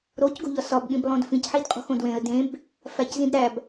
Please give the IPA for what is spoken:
ɾ o c ɡ o̤ ʎ ɒ s ɒ b ɠ ĩ b lˠ õ d f ĩ c ħ i d qʼ o̤ x õ d w ẽ ə̯ d ẽ b | f æ c z ĩ d ɾ æ b

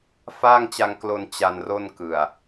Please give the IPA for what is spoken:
f aː˥˩ ŋ t͡ɕ a˧ ŋ k l o˧ n t͡ɕ a˧ n r o˥˩ n k ɯ˨˩ a̯

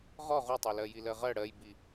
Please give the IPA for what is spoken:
ʁ ɔ ʁ u tˤ e l ɜ j i l ɜ ʁ ɜ ɽ ɜ j b i

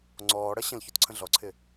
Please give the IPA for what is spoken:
ŋ͡ǀ ɔː ɽ ʌ ɕ ə̃ l ç u t ǀʰ ə̃ ɮ ɔ ǀʰ ɪ

